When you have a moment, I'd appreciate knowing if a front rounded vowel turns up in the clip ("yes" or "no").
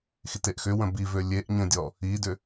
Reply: yes